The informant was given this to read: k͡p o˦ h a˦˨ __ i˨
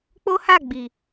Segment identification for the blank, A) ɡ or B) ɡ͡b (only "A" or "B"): B